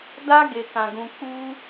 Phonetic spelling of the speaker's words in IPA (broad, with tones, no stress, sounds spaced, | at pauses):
d a˧ ɡ e˨ k ã˨ ɡ ũ˨ k͡p u˧